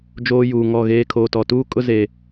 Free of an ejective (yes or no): no